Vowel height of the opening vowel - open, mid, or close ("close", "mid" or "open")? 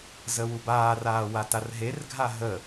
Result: mid